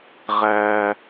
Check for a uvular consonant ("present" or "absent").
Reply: present